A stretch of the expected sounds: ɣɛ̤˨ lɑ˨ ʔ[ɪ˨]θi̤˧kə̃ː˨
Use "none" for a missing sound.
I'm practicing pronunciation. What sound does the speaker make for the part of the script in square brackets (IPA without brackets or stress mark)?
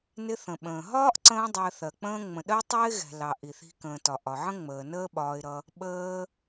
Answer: i˨